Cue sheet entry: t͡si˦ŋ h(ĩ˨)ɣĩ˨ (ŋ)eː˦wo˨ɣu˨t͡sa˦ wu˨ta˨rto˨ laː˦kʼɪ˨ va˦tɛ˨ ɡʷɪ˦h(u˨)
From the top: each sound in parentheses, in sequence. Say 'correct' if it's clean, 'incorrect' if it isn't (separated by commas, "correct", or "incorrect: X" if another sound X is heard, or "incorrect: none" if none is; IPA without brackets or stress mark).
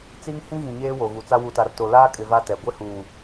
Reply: incorrect: ĩ˦, incorrect: ɲ, incorrect: uː˨